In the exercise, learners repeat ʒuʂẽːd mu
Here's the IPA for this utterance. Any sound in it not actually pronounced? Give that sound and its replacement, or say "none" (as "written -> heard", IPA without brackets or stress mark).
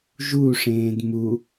none